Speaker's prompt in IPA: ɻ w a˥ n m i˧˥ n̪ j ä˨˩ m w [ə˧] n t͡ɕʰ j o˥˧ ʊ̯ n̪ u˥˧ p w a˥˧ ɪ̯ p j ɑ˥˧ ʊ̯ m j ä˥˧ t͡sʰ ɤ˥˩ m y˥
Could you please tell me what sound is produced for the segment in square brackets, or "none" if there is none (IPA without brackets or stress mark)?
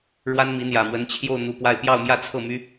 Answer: ə˧˥